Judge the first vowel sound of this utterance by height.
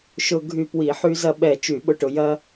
high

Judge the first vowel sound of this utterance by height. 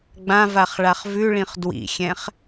low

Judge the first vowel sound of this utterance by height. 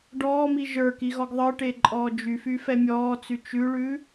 mid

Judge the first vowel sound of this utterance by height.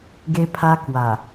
mid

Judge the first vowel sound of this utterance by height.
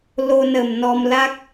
mid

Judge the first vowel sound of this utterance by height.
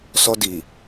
mid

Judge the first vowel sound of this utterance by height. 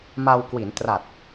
low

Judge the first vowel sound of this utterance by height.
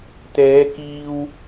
mid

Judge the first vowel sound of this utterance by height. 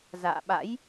low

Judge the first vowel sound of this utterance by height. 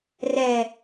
mid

